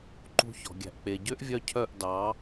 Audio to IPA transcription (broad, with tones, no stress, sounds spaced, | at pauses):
ǃ ṳ˧ ç ɔ̤˨ ɡʲ æ̤˨ ʔ k͡p e˨ ɟ ø˦ ʔ vʲ œ˧ cʰ œ˦˨ ʔ d ɑ˨˦